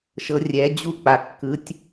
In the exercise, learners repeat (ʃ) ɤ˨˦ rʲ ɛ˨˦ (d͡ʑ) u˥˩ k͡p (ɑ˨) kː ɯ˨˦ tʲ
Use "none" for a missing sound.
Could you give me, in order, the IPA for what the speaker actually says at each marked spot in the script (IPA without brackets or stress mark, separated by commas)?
ʃ, d͡ʑ, a˨